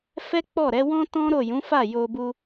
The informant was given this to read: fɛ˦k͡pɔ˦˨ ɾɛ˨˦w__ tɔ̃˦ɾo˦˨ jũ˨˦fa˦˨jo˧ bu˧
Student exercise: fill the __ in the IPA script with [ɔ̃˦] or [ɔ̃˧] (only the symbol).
ɔ̃˦